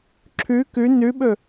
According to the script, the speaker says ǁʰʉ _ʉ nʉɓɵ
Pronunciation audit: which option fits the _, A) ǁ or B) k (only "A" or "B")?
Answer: B